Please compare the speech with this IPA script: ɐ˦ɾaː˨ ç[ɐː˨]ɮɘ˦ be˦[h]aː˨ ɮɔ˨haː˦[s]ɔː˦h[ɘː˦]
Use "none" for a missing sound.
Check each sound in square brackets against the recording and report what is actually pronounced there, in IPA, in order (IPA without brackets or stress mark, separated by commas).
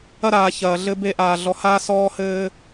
ɐː˨, ʔ, s, ɘː˦